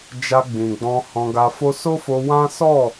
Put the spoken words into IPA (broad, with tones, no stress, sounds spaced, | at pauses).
d͡ʒ a˧ ɡ͡b ĩ˨ ɡ͡b ɔ̃˧ h ɔ̃˧ ɡ a˧ f o˦ s o˦ f o˧ w ã˦ s ɔ˦˨